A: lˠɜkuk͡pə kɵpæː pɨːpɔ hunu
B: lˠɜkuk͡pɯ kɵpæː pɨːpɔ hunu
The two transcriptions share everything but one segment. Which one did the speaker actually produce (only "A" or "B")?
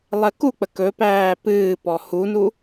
A